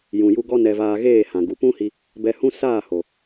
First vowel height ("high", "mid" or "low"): high